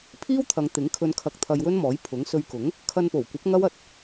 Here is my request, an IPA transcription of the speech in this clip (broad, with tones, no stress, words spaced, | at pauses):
pʰiː˥wt̪ʰɐ˨˧ŋt̪ɪ˨˥ŋkʰɵ˧n kʰɐ˧k̚t̪ʰɐ˧jwɵ˥nmɔː˨˥j pʰʊ˨˥ŋ sɵ˧ɥkʊ˨˥ŋ | kʰɐ˧npo˨˩wkʷɐ˨˥p̚ ŋɐ˥w ɐ˧t̚